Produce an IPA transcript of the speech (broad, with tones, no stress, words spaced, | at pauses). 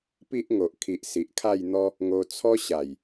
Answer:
pi˦ʔŋo˨ʔkʰi˨ʔ si˨ʔkʰa˥˧jn̪ɔ˦ | ŋo˧t͡sʰɔ˦ ɕa˨˩j